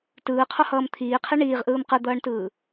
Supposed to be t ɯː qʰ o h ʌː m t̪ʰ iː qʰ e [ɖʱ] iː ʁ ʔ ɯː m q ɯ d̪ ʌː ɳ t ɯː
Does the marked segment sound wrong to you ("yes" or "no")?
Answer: yes